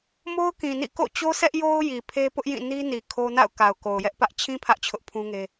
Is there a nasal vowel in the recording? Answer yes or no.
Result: yes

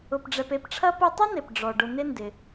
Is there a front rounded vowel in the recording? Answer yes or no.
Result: yes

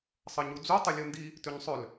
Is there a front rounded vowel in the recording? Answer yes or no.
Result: yes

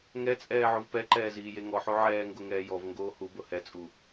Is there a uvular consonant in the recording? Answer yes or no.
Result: no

